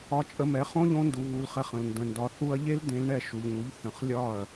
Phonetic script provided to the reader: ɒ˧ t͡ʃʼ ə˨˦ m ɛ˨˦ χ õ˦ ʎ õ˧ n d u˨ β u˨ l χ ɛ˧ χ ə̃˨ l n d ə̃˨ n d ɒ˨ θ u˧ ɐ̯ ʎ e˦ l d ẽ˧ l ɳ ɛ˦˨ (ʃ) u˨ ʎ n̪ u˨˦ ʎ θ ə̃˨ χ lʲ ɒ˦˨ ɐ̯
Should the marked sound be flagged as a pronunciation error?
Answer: no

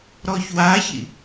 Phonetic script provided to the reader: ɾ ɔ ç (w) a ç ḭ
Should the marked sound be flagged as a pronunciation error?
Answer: no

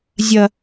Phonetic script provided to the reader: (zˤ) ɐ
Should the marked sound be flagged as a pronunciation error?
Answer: yes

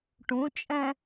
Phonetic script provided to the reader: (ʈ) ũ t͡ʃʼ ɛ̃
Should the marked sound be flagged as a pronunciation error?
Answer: no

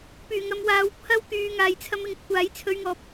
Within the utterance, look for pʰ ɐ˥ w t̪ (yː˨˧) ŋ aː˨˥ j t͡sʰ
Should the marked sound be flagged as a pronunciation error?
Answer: no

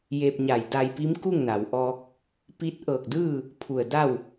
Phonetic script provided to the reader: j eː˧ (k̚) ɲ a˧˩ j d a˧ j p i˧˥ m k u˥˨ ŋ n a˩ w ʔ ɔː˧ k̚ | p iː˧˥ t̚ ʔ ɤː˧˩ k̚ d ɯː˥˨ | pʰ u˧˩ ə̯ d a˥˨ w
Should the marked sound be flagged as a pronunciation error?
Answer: yes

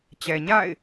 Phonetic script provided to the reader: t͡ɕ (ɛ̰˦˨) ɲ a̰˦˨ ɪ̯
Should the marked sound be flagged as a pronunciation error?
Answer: yes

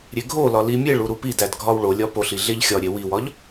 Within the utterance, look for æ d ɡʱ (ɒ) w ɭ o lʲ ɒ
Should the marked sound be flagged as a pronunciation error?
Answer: no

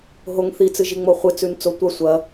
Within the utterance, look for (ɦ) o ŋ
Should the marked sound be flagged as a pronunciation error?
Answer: no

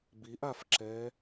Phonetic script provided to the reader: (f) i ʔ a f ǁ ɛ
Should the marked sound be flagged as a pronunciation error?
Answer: yes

